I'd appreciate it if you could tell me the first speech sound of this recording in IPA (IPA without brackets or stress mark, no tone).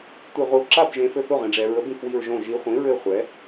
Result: tʷ